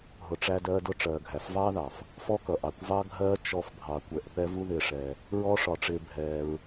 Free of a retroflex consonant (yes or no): no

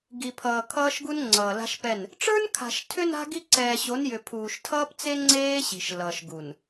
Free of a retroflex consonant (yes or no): no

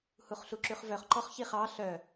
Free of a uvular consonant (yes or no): no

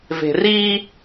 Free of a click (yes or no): yes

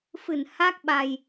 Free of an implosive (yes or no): no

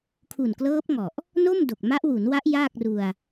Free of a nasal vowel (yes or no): yes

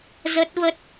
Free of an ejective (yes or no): yes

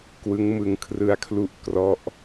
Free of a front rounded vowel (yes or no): yes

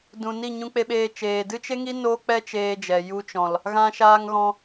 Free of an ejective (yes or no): yes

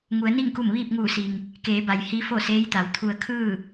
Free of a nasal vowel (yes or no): yes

